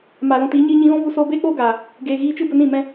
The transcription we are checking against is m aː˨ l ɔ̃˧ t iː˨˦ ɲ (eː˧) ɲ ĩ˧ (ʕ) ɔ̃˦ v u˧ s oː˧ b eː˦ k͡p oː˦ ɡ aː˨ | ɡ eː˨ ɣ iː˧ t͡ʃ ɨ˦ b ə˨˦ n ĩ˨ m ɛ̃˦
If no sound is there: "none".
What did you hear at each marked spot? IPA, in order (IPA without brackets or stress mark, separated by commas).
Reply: iː˧, ɣ